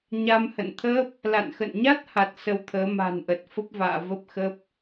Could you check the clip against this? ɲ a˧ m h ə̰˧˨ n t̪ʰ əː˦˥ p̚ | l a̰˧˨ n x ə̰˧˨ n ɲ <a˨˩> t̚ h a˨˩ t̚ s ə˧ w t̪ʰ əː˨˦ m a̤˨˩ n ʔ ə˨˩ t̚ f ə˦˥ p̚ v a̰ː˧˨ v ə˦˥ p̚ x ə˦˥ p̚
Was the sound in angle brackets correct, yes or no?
no